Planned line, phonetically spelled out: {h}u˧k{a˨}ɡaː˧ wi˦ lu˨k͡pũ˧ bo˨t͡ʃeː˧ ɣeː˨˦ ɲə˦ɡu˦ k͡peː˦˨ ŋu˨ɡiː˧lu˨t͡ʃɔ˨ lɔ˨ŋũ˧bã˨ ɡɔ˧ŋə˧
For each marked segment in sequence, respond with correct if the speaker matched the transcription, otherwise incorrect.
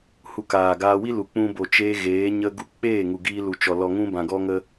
correct, incorrect: aː˨

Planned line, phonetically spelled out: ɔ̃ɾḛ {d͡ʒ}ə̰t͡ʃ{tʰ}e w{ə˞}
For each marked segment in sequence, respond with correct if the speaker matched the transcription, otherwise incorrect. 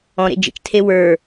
correct, correct, correct

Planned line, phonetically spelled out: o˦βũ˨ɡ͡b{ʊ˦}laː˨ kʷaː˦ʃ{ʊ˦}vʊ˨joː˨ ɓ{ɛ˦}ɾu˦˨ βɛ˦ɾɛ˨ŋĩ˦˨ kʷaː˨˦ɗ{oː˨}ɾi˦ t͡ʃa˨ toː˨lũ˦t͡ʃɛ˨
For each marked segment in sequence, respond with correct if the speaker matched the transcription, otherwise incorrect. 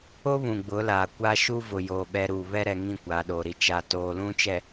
incorrect: ʊ˨˦, incorrect: u˦, correct, correct

